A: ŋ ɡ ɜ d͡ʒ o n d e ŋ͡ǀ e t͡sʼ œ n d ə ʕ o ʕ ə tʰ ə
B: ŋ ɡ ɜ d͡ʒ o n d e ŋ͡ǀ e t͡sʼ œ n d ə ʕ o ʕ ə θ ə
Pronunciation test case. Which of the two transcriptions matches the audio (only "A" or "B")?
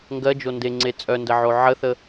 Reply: B